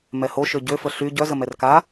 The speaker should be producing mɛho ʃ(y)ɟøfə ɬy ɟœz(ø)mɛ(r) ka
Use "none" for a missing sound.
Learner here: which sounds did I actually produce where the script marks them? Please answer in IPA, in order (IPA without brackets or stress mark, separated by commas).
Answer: ø, ə, r